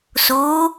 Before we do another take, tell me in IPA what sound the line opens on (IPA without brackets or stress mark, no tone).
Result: s